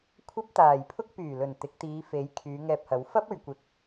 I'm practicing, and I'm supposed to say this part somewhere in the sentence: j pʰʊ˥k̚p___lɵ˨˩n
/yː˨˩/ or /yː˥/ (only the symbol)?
yː˨˩